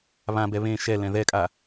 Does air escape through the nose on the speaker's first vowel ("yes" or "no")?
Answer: yes